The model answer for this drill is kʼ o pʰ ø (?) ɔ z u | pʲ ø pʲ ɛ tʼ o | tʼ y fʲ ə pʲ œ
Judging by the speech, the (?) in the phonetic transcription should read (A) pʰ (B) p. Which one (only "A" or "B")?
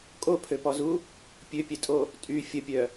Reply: B